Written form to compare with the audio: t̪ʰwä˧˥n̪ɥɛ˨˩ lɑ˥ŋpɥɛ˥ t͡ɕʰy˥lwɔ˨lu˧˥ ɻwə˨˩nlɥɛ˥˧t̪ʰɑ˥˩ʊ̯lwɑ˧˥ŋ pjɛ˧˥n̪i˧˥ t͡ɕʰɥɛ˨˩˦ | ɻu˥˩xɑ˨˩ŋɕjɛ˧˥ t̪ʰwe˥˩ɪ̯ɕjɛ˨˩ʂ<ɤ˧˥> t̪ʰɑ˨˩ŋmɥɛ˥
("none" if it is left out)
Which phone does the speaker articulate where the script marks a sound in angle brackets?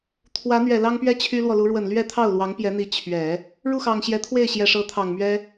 ɤ˧˥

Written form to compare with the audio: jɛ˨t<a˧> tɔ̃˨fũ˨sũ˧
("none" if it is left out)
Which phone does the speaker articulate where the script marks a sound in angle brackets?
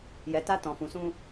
a˧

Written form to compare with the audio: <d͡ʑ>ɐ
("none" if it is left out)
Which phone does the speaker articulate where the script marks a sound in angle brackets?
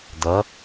d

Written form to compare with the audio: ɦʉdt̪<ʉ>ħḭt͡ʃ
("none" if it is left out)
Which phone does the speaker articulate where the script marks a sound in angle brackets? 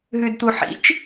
u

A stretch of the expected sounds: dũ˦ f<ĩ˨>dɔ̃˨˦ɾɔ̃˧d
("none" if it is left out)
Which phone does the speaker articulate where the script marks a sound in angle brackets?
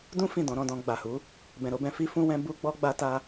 ĩ˦˨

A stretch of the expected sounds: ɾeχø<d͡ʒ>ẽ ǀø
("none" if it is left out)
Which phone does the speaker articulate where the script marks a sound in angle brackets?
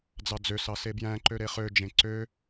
d͡ʒ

